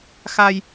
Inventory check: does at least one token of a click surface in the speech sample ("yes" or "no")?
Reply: no